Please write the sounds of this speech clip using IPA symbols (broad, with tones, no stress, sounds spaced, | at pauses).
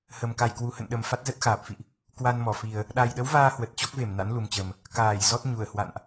h ə˨˩ m k a˧˩ j k w u˨˩ h ə̰˧˨ n ɗ ə˨˩ m f a˦˥ t̚ z ə˦˥ t̚ x aː˨˩ p̚ f ḭ˧˨ ʔ | k w a˧ n m ɔ˧˩ f i˨˩ ə̯ | ɗ a˨˩ j ɗ ə˨˦ w v aː˧ h w ə˨˩ t̚ t͡ɕ ɔ˦˥ k̚ v e˧˩ m n a̰˧˥ n l u˨˩ m t͡ɕ ə˨˩ m | k aː˧˩ j z ɔ˦˥ t̚ ɲ u˧˩ ə̯ h w a̰˧˨ n ʔ